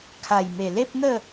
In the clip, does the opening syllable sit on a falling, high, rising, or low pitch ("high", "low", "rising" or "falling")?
low